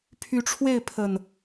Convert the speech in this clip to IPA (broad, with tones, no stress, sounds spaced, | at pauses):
pʰ y˨˦ ʈ͡ʂʰ w e˥˨ ɪ̯ pʰ ə˨˩ n